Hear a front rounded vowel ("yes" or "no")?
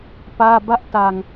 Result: no